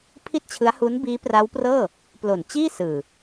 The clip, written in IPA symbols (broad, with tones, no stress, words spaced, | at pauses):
pʰi˥˩t̚t͡ɕʰɯ˦˥a̯hu˦˥n biː˦˥pra˦˥wprɤː˥˩ | plo˨˩nt͡ɕiː˥˩ sɯː˨˩